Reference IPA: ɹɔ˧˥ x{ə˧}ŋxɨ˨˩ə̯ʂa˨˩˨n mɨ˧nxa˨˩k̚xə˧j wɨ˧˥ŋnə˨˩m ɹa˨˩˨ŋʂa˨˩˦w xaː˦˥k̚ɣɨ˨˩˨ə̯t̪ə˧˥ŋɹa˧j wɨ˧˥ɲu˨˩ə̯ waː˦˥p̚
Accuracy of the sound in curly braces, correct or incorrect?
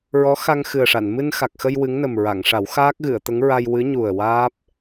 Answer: incorrect